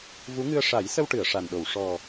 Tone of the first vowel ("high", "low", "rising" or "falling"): rising